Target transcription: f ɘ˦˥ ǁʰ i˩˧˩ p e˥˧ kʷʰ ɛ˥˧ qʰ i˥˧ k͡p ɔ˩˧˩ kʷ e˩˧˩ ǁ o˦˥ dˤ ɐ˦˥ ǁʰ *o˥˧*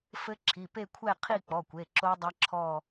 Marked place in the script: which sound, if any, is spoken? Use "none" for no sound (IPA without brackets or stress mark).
ɔ˥˧